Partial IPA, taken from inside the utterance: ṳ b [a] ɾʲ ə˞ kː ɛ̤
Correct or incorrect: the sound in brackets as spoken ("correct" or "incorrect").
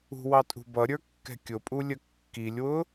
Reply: incorrect